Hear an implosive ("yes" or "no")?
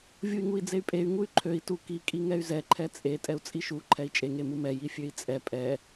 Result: no